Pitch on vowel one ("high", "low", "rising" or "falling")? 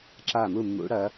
falling